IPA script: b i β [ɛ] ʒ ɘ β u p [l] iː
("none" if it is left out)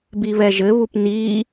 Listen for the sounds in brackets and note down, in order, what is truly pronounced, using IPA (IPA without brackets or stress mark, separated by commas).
ɛ, n